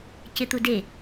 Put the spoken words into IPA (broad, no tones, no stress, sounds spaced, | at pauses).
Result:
c ɪ t̪ u d e